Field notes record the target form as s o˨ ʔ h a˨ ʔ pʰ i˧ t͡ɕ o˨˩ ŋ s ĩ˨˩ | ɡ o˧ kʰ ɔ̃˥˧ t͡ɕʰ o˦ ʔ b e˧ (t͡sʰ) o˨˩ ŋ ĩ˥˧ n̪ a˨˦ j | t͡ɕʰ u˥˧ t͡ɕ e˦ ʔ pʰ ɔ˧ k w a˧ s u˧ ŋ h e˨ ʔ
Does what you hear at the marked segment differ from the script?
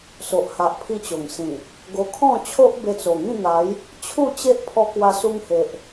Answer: yes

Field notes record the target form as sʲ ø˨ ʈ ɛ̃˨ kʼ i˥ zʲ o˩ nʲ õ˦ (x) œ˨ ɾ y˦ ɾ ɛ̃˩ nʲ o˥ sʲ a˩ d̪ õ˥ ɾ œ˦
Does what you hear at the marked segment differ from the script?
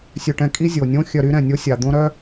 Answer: yes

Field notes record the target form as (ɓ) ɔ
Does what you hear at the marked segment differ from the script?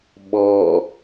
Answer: no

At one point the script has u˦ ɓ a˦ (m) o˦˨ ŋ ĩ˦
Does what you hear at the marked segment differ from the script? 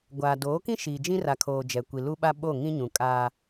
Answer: yes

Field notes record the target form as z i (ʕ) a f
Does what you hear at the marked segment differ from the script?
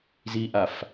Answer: yes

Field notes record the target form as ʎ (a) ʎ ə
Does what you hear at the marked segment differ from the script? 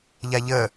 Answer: no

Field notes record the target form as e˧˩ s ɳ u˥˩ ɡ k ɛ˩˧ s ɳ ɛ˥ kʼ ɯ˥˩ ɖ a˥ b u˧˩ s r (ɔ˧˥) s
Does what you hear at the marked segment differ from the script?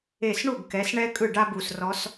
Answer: no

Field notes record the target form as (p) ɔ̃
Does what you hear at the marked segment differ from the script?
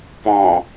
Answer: no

